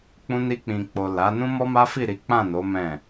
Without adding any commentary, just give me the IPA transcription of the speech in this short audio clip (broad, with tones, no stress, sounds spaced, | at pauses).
k͡p ũ˧ n i˧ k͡p ĩ˨ k͡p o˨ l a˨˦ n ũ˦ m ɔ˦ m a˦ f i˦˨ ɾ i˨˦ k͡p ã˦˨ n o˨˦ m ɛ̃˦˨